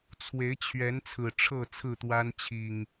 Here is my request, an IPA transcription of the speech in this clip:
t͡sʰwe˨˦ɪ̯t͡ɕʰɥɛ˨˦n t͡sʰɹ̩˨˩ʈ͡ʂʰɤ˥˨ t͡sʰɹ̩˥˨t̪wa˦n t͡ɕʰi˨˩ŋ

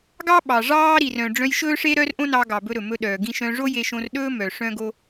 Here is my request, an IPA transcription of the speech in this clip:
ɡɑ˥ɓɑ˩ ʐɑː˥ɾi˩rœ̃˩ ɖ͡ʐœ̃˧jʃɵː˥ʂe˥ɾœ˥r ʔõ˥nɑ˧ɡɑ˩ bɵ˧ɾɵ˩mɵ˧ɗœː˩ ɡĩ˧ ʃœ̃˧ ʐo˥je˧ʃõ˧r ɗɵː˥mœ˩ ʂœ̃˥ɡo˥

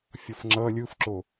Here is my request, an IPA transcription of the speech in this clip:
fʲʌfŋ͡ǁʌ lʲɯfǁo

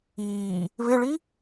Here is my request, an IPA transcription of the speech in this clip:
iː | βɪɭi

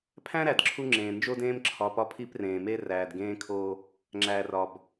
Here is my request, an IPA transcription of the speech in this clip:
pʰæ̃˦ɾæ˨d ǁʰu˦ŋ͡ǁẽː˨ nd͡ʒo˦dẽː˦m ǁʰɒ˨pɒ˦pʰi˦p rẽː˨me˦ ræː˨dɡẽː˦kʰoː˦ | ŋ͡ǁæː˨rɒ˨b

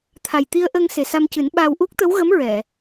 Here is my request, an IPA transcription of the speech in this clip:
t̪ʰa˨˩j t̪i˧ə̯ʔə˧ŋ se˨˩sa˧mcɨ˨˩˦nɓaː˧w ʔu˦˥k̚t̪ə˧˥wɣə˧˥m ɹɛ˨˩˨

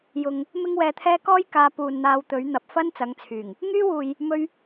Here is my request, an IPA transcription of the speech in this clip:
jʊ˨ŋ | mɪ˥ŋwɛː˧t̪ʰɛː˥ kɔː˥jkaː˨˧ puː˨nn̪aː˨˧w t̪ɵ˨˥ɥn̪ɐ˨˥p̚ fɐ˥n t͡sɐ˨˥ŋt͡sʰyː˨˩ŋ | ŋyː˥wuː˨j | mɵ˥ɥ

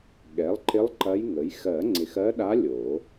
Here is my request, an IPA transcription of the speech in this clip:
ɠɛ˩˥lˠǃɪ˧˥lˠ ǃɐ˧˥j ŋə˩˥j xɜ˨˩˦ŋ͡ǀɪ˨xɜ˧˥ɗa˧˥ lʲo˨˩˦

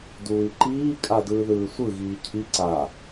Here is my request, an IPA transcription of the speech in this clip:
duːi̯ǃiːkʼa dɯːðɯːsʷɯ ɣiːcʰi ǀa

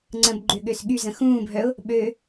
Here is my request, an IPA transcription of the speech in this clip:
ŋ͡ǀə̃bɡ͡ǃʏɠøs ɠyzə̃ xũːbʱœʊ̯ | ɓø

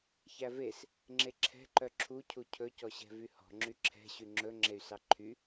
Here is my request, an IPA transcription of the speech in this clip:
çæves | ŋ͡ǁeǁʰɛ̤ ǃœǁʰu cʰucʰɵ cɔɕɛ̤vyhɔ̤ ŋ͡ǁyǁʰɛ̤ ɕyŋ͡ǁɵ ŋ͡ǁey̯sɑǃʰy

